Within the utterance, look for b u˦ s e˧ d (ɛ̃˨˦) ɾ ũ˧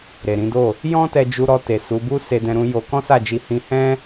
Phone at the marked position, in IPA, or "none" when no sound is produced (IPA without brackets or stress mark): ɛ̃˧